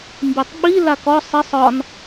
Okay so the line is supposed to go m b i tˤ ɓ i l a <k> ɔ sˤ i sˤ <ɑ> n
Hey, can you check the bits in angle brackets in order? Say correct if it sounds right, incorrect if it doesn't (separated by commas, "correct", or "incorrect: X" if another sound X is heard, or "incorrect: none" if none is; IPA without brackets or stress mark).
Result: correct, incorrect: ɒ